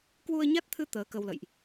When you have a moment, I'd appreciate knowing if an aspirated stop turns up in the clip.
yes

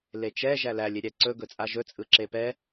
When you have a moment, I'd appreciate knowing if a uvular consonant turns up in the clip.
no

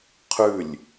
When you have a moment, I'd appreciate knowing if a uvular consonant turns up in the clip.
yes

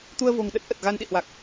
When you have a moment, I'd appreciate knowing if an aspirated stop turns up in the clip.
no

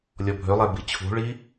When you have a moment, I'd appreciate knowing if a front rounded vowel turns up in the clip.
yes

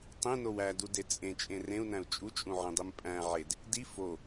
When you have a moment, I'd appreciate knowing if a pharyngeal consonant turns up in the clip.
yes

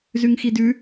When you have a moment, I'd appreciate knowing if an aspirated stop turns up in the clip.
no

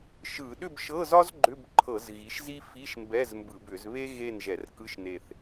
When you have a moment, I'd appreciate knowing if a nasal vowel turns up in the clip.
no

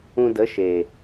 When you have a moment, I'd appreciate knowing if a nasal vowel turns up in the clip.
yes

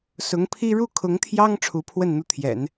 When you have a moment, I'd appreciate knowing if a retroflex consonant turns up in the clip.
yes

